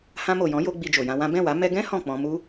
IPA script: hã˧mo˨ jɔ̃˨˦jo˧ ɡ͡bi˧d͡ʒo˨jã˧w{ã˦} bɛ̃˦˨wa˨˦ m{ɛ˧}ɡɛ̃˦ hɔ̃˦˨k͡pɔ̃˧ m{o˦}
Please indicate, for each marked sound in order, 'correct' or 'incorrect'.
correct, correct, incorrect: u˦

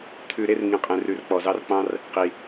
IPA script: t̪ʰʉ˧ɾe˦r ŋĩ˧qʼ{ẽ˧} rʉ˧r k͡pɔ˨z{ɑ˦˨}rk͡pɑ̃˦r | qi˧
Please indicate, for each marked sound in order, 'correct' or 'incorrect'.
correct, incorrect: ɑ˦

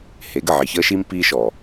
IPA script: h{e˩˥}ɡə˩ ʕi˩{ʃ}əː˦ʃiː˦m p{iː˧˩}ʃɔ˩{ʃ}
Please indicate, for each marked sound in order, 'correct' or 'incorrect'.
correct, incorrect: ç, incorrect: iː˦, incorrect: none

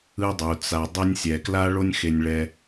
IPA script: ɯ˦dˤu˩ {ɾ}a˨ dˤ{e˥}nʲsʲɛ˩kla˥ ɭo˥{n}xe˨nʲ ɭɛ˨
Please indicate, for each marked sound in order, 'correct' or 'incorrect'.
incorrect: t͡s, incorrect: e˦, incorrect: nʲ

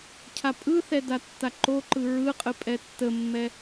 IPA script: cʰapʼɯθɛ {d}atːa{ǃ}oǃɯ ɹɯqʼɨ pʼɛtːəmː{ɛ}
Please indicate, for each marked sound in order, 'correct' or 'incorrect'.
correct, correct, correct

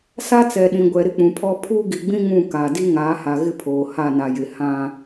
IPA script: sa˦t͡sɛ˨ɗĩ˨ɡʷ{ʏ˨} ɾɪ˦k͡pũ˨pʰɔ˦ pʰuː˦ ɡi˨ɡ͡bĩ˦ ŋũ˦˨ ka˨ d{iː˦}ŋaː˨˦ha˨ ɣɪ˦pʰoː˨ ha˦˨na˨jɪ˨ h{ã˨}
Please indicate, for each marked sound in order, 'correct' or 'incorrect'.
incorrect: ɛ˨, incorrect: i˦, incorrect: ã˦

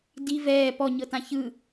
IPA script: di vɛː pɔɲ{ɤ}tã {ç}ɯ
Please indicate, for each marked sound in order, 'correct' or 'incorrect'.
correct, correct

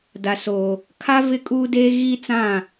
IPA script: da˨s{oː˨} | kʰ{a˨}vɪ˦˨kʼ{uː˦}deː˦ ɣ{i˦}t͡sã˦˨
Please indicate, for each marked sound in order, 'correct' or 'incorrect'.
correct, incorrect: a˦, correct, correct

